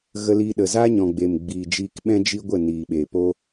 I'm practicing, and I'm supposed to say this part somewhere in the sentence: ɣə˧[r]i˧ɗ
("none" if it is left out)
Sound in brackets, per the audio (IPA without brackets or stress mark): l